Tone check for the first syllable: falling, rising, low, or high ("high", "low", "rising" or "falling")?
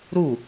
falling